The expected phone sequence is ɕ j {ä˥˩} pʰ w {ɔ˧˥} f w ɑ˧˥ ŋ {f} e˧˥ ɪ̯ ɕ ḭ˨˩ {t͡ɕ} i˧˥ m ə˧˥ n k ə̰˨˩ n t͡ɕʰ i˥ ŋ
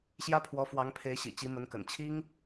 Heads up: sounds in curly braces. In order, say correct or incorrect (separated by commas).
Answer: incorrect, correct, incorrect, correct